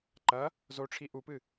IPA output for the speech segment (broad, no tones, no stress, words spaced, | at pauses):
ǃɐ | zoʈ͡ʂʰi ʔupɨ